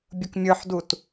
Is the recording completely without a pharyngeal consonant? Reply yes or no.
no